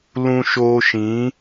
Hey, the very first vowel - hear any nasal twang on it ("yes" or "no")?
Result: yes